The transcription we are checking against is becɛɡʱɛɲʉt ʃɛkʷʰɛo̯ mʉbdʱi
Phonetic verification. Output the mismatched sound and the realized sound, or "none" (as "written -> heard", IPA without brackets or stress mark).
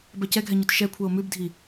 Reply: e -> ɛ